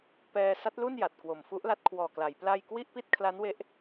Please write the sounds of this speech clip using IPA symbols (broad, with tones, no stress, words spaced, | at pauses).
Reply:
pɛː˧sa˦˥t̚lu˥˩n ja˨˩t̚kwo˨˩mfu˦˥ʔla˦˥t̚ kʰwɔː˨˩kla˩˦j pla˥˩j kwi˥˩ʔpi˥˩t̚kʰla˦˥n we˦˥ʔ